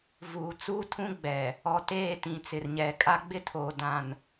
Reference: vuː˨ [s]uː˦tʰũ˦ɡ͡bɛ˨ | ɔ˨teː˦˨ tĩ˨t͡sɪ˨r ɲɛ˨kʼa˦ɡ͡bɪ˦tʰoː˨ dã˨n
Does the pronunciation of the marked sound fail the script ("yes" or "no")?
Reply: yes